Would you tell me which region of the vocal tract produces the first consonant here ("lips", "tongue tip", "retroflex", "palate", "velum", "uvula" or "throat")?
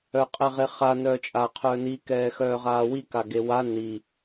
uvula